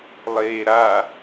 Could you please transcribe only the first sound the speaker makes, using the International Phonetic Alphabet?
lˠ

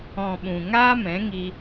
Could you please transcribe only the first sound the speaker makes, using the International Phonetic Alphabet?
ɔ̃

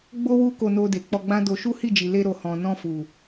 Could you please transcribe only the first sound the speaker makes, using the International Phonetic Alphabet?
ɡ͡b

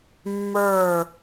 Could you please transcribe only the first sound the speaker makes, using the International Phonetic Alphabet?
mː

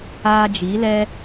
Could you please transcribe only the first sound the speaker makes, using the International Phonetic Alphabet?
aː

